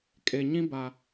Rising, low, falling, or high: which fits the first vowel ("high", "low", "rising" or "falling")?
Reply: low